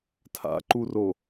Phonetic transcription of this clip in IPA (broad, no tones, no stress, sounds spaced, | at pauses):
tʰ a̰ ǃ u r o